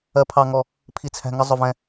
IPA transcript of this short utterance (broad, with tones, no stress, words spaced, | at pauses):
ɜ˥pʰɑ˥ŋɔ˥ | pʰi˥t͡sʰæ̤˥ ŋə˥ zˤʊ˥vɛ̃˥